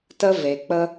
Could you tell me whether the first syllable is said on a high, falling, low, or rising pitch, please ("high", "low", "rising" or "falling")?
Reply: high